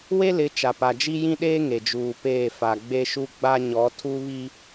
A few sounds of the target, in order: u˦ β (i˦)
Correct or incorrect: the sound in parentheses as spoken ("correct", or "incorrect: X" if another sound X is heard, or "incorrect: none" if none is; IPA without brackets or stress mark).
correct